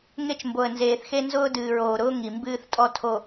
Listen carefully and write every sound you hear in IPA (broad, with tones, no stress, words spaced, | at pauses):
ŋe˦t͡ʃmbo˨ə̯nzeː˨θxe˦ nzʊː˦dɨː˨ɹoː˨ɾʊː˦ ŋi˨mbɨː˦θtʼɔ˦ tʰo˨